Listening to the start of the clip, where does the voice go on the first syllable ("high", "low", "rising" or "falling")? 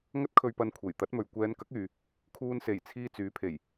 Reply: high